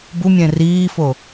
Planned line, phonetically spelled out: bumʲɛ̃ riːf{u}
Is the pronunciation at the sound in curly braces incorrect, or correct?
incorrect